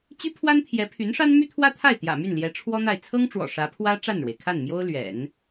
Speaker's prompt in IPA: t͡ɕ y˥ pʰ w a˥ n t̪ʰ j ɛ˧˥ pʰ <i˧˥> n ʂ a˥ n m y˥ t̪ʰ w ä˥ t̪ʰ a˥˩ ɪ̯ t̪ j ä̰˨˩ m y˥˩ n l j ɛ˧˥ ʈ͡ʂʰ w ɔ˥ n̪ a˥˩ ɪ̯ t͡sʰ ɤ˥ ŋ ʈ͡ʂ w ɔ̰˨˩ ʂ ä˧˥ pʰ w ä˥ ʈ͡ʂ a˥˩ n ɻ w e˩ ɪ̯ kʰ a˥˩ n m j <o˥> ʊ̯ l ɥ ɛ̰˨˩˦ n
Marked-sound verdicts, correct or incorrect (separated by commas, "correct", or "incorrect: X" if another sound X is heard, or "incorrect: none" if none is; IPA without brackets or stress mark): incorrect: y˧˥, correct